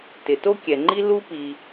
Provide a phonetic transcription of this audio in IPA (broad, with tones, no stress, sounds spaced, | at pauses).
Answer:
t ɪ˩ t o˥ kʲ ɛ˩ ŋ͡ǃ i˥ l u˥ p i˩